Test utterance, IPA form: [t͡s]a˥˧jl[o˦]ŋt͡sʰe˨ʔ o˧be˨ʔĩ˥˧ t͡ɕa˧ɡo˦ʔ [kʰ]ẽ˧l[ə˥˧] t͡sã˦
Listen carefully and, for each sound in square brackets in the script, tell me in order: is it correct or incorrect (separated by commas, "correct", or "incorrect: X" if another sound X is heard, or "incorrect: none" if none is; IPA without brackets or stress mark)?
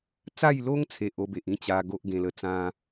correct, correct, incorrect: ɡ, incorrect: ə˧